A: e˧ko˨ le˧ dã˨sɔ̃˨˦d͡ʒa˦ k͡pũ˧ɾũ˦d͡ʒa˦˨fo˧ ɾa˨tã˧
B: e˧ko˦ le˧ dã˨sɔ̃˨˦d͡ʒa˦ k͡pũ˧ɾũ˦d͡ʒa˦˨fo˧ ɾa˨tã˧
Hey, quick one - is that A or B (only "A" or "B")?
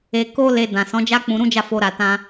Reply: B